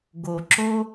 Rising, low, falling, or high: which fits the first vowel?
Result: low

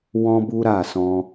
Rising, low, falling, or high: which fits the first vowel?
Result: high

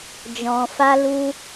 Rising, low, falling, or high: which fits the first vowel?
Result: low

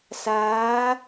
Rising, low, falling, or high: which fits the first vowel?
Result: rising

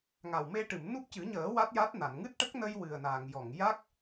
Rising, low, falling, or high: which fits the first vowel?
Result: low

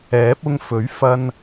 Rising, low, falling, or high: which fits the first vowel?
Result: rising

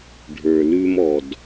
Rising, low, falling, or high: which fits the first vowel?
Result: low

